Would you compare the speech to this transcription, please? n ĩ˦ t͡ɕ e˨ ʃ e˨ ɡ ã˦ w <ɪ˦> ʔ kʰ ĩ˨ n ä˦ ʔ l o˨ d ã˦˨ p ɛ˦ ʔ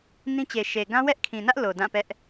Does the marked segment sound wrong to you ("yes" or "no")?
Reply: yes